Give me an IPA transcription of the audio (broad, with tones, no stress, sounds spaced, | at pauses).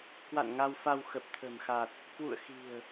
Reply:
k w a̰˧˨ n ŋ a˧ w f a˧ w x ə˨˩ p̚ t̪ʰ ə̤˨˩ m x a˨˩ t̚ | k w ṵ˧˨ ə̯ x i̤˨˩ ə̯